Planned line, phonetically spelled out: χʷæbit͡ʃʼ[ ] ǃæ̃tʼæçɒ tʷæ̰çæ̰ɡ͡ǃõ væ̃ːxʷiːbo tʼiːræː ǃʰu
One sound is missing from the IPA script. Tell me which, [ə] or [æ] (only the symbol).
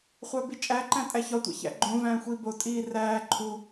æ